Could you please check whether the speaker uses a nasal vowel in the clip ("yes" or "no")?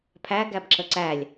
no